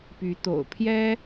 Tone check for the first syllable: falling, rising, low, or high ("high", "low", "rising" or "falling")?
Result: rising